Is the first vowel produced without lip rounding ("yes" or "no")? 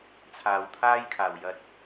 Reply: yes